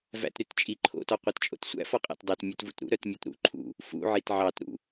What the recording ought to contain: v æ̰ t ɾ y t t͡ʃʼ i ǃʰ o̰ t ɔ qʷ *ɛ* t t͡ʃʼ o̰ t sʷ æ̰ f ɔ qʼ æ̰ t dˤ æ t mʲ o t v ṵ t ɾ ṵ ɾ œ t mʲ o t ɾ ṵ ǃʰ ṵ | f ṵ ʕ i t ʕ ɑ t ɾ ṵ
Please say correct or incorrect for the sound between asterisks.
incorrect